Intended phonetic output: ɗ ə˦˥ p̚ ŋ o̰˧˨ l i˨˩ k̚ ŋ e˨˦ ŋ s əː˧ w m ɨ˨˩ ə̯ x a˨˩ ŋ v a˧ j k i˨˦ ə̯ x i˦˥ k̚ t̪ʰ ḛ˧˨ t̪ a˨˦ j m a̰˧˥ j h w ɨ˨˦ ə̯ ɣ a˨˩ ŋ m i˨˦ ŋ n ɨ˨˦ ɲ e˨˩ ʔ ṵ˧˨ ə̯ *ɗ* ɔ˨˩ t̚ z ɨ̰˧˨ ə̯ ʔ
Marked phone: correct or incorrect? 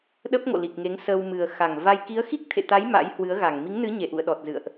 correct